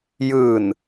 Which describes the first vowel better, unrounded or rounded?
unrounded